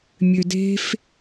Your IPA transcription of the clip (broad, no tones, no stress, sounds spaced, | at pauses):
mʲ ø d e̤ f